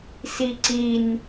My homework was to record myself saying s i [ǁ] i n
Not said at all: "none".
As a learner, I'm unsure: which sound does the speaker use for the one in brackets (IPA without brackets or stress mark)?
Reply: ǀ